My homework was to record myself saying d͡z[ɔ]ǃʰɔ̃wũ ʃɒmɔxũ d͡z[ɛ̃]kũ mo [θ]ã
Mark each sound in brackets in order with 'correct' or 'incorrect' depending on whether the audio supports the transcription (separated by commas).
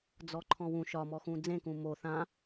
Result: correct, incorrect, correct